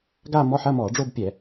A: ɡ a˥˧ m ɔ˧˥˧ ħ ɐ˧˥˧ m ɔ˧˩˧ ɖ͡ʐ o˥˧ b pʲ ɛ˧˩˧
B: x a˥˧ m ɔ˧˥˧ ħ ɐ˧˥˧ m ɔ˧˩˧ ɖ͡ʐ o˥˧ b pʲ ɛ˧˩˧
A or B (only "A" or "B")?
A